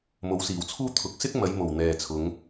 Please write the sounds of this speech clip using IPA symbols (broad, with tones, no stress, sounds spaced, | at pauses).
m o˨˥ w s iː˨˩ w t͡sʰ uː˥ t̪ʰ ʊ˨˥ k̚ s ɪ˥ k̚ m ɐ˨˧ j m o˨˩ w n̪ ɛː˨ t͡sʰ ʊ˨˧ ŋ